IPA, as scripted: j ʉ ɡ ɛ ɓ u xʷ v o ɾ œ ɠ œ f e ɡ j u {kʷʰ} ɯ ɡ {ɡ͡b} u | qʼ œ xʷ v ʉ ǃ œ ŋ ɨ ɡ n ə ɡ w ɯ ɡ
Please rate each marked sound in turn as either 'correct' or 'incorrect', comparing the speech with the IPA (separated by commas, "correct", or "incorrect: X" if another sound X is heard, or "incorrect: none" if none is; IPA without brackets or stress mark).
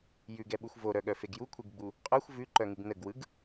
correct, correct